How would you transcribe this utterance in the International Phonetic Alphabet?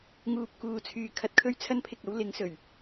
ŋuː˧p̚kuː˨t͡sʰyː˨kʰɐ˨t̚ kʰɵ˥ɥt͡sʰɐ˥npʰɪ˨k̚ɐ˨˥w lɪ˨˧ŋsɵ˨˩ɥ

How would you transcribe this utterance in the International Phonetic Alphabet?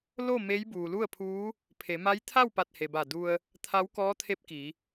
lo˥˨ me˧˥j buː˩lu˥˨ə̯pʰuː˧˥ | pʰe˩˧ma˧˥j t̪ʰa˥˨wpa˧˩t̚ he˩ba˧˩ du˧ə̯ | t̪ʰa˧˥wkɔː˧˥t̪ʰe˧˥p̚ki˩˧

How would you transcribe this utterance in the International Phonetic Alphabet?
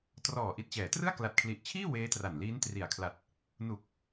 trɔː˨˩ʔi˨˩t̚t͡ɕɛː˩˦trɯ˥˩a̯ kla˨˩t̚kʰli˨˩ʔt͡ɕʰiː˥˩ weː˦˥tra˨˩nliː˦˥n tri˨˩a̯kʰla˨˩t̚ | nu˨˩k̚

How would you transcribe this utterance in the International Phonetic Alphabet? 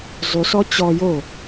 zˤysɔ t͡ɕɔ jo

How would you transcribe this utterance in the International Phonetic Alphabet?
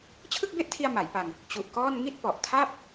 t͡ɕʰɯ˥˩k̚be˥˩ʔtʰi˧a̯ ma˩˦jpa˧ŋ | t͡ɕu˨˩ʔkɔː˥˩n ŋi˥˩t̚pɔ˨˩ʔ tʰa˥˩p̚

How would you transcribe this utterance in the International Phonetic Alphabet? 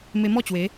me˧mɔ˥˧ t͡ɕwe˨˦

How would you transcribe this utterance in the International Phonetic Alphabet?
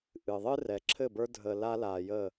ʔɨ˨ðˤɨ˦ rɛ˨ǁʰɘ˦˨bə˞˦ dʱə˨ la˦la˨jə˦˨

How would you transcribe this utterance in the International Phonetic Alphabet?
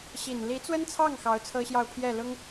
ɕi˨˩nli˧˥t͡swə˥nt͡sʰɑ˥˩ŋ xɑ˧˥ʊ̯t͡sʰɤ˥ɕjɑ˥˧ʊ̯pʰjɛ˥˩ lʊ˥ŋ

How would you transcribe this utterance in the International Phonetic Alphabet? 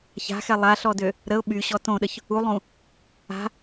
ça̤xɛ lˠaɬɔdø | ɾəʊ̯ ɓyɕɔ tõɗəç | ulˠũ | a̤

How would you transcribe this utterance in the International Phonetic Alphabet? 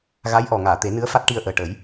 ɣa˧˥jʔɔ˨˩ŋaː˨˩˨ t̪e˨˩˦nɨ˧˥ə̯fa˦˥t̚ ʈi˧ə̯ʔəː˨˩ʈə˨˩˦j

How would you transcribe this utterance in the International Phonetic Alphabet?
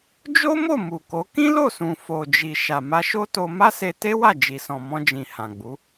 d͡ʒo˦mo˦˨ mu˨ko˨˦ kĩ˦lo˦˨sũ˨ fo˨d͡ʒi˨ ʃa˨ma˧ʃo˦to˧ ma˦se˧ te˦wa˦˨ d͡ʒi˨sɔ̃˨ mɔ̃˧d͡ʒĩ˨ hã˨ɡ͡bu˨˦

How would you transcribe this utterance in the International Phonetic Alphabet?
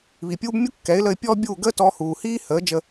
βi˨pʲuː˦b mʲu˦kːɛ˨˦ɪ̯lə˧ɪ̯ pʲɔː˦bʲuː˦˨ ɡəː˦tɔ˧huː˨hiː˦ həː˨˦ d͡ʒə˧

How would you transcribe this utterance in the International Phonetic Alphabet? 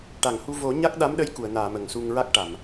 ʈa˨˩˨ŋhu˧ vo˨˩˦ɲa˦˥k̚ɗa˧˥mɗə˧˥j ku˨˩˨ə̯naː˨˩˨ mə˨˩ŋsu˧ŋ ɹa˦˥k̚ʈa˨˩˨m

